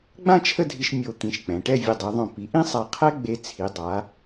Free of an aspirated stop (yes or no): no